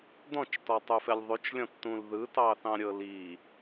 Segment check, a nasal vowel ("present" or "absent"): present